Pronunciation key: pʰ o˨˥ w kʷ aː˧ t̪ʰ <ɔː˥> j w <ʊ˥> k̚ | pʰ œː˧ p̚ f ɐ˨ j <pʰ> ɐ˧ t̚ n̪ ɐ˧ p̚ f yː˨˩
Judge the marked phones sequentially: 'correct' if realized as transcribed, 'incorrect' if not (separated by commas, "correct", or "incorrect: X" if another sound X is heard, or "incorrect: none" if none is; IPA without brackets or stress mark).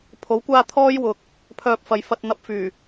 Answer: correct, incorrect: ʊ˨, incorrect: f